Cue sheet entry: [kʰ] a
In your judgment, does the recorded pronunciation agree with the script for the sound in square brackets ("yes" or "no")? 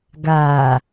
no